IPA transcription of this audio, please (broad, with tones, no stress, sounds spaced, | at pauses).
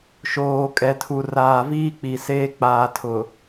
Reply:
ʃ oː˨ kʼ ɛ˨ tʰ u˨ r aː˨ v iː˦ k͡p i˨ s eː˦ k͡p aː˨ tʰ ʊ˨